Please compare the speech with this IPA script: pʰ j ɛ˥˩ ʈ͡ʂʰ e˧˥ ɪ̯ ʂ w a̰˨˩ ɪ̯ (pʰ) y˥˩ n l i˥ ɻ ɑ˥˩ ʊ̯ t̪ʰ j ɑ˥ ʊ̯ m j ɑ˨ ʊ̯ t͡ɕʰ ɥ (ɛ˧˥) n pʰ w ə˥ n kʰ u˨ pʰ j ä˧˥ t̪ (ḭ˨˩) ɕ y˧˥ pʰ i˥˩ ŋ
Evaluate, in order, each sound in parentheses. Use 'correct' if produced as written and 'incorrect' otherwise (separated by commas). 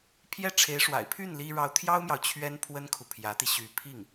correct, incorrect, incorrect